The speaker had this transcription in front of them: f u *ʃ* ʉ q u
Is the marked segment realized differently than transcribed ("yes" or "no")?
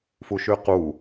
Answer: no